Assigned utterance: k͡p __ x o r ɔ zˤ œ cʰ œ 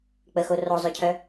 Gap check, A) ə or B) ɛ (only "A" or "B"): A